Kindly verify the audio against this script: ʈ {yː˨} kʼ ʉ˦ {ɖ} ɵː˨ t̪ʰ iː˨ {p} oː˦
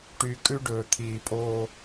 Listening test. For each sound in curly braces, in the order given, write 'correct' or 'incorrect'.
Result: correct, correct, incorrect: pʼ

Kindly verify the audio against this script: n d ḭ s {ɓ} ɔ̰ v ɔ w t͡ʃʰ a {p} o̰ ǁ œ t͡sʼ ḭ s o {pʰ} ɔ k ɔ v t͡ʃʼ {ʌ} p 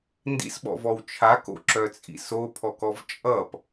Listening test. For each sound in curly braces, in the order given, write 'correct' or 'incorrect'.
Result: correct, incorrect: k, correct, correct

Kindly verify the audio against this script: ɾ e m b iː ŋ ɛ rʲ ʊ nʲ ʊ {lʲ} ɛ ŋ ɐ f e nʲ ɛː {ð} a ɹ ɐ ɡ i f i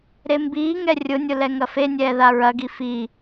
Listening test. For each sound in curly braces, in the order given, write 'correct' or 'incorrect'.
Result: incorrect: l, correct

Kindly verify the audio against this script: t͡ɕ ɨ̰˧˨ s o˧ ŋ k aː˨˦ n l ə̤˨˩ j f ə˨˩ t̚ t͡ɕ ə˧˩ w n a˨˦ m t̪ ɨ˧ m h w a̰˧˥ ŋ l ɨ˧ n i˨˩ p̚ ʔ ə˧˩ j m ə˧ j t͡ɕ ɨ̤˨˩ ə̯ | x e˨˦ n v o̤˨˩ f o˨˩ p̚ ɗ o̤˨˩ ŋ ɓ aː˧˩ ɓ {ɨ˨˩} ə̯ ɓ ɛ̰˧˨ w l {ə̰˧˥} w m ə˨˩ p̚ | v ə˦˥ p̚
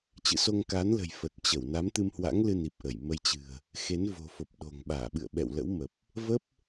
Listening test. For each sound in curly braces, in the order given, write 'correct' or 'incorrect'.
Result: incorrect: ɨ̰˧˨, correct

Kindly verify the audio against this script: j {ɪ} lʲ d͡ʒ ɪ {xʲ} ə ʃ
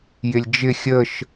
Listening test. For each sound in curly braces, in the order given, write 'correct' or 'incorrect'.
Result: correct, correct

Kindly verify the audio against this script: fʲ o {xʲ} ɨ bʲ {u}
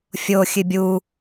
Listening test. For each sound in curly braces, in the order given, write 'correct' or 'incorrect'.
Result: correct, correct

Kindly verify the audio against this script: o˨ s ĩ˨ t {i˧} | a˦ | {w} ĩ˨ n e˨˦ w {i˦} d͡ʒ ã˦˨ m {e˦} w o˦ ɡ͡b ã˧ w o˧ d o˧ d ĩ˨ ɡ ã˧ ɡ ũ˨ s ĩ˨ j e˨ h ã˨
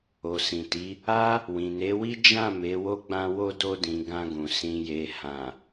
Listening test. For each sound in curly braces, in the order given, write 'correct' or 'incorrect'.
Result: incorrect: i˨˦, correct, correct, incorrect: e˨˦

